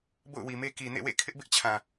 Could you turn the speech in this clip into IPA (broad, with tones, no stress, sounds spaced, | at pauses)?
b o̰˦˨ ʊ̯ w i˨ m e˦ k i˨ n ḛ˦˨ w ḛ˦˨ kʰ ɪ˦ ʔ b ɪ˦ ʔ t͡ɕʰ ã˨